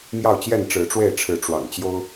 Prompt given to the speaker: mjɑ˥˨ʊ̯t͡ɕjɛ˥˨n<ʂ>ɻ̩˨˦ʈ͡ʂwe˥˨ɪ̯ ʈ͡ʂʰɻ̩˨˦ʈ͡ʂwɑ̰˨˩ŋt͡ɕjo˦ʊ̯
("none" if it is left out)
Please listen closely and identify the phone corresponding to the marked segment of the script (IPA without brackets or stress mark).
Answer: ʈ͡ʂ